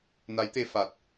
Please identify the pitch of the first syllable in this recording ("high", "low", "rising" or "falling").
rising